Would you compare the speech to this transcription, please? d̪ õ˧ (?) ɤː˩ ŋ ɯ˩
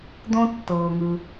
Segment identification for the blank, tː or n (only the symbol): tː